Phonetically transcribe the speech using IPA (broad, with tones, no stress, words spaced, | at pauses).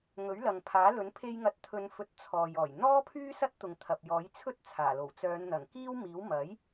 ŋɵ˨˥ɥlɐ˨ŋpʰaː˨˥lɵ˨˥n pʰe˧jŋɐ˨˥t̚t̪ʰɵ˨˧n fɵ˨t̚ t͡sʰɔː˨jɔː˨˩j n̪ɔː˥pʰyː˥ sɐ˥t̚t̪ʊ˨ŋt̪ʰɐ˨p̚jɔː˨˥j t͡sʰɵ˥t̚t͡sʰaː˨˩lo˨˩wt͡sœː˨˧n n̪ɐ˨˩ŋkiː˥wmiː˨˥w mɐ˨˥j